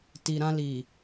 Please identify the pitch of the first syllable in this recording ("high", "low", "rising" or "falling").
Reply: low